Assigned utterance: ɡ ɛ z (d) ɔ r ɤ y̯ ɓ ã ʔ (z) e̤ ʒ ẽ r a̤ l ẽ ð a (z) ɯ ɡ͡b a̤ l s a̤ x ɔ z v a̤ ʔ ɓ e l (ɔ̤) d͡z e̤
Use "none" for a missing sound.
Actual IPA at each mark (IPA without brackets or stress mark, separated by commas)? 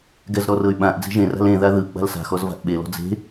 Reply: ɾ, d͡z, ð, ɔ̤